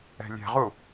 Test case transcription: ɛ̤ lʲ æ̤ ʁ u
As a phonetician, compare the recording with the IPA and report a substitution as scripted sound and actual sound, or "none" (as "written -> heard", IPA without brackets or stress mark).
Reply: æ̤ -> ɛ̤